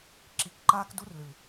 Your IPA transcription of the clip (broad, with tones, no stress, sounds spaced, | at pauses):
ǁ i˨˦ k ǃ aː˦ k d u˦ r l ɨ˨